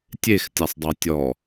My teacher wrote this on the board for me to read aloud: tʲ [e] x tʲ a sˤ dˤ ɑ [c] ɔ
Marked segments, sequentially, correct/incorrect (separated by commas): correct, incorrect